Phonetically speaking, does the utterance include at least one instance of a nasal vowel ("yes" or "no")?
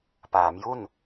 no